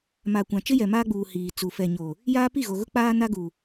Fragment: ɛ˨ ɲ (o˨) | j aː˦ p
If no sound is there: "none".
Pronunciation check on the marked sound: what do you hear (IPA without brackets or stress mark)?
o˨